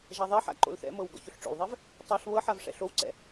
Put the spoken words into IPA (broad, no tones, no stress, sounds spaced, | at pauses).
ʒ a ðˤ ɛ ħ a̰ ǃ o̰ l θ ɛ̰ m ɤ w ɡ ɔ̰ ç o ɬ ʈ͡ʂ o̰ l ðˤ ɛ v | tˤ a ɬ β ɤ ħ a v ʂ ɛ̰ ɬ o w ǀ ɛ̰